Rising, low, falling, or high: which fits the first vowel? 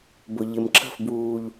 low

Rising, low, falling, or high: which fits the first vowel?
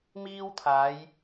high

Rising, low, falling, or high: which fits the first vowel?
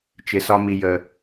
low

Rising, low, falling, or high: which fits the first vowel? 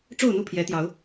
falling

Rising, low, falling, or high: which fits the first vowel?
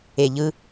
low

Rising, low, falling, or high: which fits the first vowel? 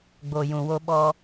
low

